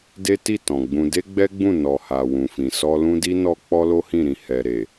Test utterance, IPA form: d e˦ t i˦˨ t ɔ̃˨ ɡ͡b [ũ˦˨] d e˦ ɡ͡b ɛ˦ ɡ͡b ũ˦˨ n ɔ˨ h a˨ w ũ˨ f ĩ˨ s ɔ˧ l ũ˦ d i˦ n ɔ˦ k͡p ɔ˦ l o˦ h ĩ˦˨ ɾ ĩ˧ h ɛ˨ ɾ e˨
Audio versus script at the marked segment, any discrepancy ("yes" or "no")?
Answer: yes